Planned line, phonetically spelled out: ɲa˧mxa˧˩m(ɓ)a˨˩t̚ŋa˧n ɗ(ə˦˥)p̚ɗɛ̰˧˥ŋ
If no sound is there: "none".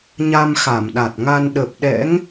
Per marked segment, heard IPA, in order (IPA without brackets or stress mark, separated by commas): ɗ, ə˨˩